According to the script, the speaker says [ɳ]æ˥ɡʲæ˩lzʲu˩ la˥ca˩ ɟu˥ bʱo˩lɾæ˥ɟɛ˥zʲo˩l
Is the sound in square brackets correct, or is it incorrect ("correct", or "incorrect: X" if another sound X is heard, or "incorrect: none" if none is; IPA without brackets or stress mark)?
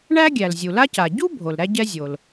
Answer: correct